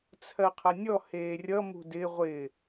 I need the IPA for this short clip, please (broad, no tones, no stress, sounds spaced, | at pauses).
t͡sʰ ɜ qʰ ʌ nʲ ɔ h eː rʲ ʌ m ṳ d ɪ ʁʷ ɪ